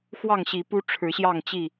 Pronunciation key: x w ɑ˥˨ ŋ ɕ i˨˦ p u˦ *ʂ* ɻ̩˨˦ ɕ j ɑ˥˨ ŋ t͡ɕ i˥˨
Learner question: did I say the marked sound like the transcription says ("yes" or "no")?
no